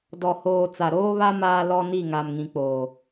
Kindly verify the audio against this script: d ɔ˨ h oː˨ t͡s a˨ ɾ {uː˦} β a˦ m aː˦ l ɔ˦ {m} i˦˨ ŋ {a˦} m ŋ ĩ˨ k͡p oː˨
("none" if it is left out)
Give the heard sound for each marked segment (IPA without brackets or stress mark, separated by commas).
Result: oː˦, n, a˨